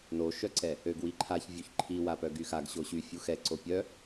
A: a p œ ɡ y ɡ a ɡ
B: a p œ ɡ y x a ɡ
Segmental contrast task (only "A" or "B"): B